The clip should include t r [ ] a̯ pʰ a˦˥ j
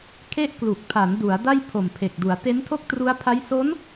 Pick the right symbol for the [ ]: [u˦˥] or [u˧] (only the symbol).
u˦˥